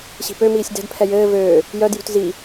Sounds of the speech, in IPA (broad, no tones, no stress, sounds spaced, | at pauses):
ɕ i̤ p ø m iː sʲ d ɛ̤ d pʰ ɛ j ɘː v øː | j œ d j ṳ t z i